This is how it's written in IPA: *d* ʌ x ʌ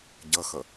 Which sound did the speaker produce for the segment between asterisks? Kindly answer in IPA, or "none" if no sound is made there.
ɟ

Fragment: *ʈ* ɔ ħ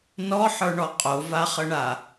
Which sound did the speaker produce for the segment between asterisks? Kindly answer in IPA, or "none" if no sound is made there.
n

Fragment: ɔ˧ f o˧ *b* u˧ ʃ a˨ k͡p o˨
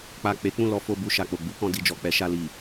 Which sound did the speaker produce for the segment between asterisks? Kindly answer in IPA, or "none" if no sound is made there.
b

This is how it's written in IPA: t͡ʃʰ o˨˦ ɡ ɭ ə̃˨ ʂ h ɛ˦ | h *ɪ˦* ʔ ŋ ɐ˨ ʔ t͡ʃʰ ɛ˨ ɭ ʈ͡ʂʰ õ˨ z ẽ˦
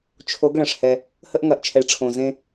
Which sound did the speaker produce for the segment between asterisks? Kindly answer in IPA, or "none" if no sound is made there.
ə˦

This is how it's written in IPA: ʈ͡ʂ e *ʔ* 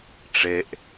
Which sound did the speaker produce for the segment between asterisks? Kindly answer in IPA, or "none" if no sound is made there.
ʔ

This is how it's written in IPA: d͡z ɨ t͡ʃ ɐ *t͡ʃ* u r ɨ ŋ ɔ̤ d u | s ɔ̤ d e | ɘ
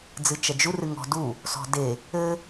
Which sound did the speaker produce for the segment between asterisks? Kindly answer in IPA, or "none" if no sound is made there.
d͡ʒ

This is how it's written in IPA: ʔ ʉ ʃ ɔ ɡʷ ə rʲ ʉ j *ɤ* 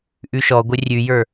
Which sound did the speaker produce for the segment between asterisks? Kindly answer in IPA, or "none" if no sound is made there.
ə˞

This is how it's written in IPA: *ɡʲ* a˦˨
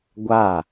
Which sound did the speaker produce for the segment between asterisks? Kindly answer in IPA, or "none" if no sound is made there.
ɡʷ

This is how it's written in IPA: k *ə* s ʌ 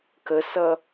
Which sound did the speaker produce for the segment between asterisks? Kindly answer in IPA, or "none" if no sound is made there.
ə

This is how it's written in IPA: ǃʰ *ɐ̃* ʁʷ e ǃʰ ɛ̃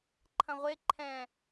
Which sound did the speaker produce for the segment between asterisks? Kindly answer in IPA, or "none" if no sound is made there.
ɐ̃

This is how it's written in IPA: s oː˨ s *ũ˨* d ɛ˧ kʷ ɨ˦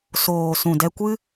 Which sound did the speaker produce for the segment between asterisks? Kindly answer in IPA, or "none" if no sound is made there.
ũ˨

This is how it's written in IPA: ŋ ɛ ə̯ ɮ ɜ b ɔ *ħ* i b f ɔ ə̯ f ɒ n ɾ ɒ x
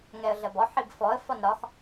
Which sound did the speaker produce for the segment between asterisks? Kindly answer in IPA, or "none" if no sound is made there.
ħ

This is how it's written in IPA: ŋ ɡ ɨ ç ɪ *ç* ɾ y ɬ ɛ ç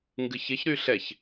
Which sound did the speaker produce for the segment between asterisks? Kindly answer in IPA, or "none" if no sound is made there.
ç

